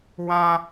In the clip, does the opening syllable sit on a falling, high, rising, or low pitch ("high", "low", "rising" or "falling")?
high